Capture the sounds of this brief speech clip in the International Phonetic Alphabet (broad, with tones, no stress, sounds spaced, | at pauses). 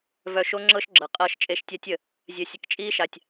v œ˧ ʃ o˦ ŋ͡ǁ ɤ˦ ʃ ɡ͡ǁ ɤ˨ qʼ ɤː˧ ʃ t͡ʃʼ e˧ ʃ tʲ a˦ tʲ ə˨ | zʲ œ˧ sʲ ə˧ k t͡ʃʼ iː˦ ʃ a˨ tʲ